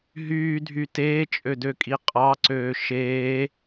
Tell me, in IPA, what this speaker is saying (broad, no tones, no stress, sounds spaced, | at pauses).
ɦ yː dʱ y t eː t͡ʃʼ ø d ø kʼ i qʼ ɑ ǀ øː ʃ eː